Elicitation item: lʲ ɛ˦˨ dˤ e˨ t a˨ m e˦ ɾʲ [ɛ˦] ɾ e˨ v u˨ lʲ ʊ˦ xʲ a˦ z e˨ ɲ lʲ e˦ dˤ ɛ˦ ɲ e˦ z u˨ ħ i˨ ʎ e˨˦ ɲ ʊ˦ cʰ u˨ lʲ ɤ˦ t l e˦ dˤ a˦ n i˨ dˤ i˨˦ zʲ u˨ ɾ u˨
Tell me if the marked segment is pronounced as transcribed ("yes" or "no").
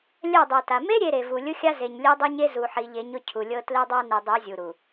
no